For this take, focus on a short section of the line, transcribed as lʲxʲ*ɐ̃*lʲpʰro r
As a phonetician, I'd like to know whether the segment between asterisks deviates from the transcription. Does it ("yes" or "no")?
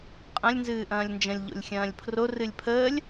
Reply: yes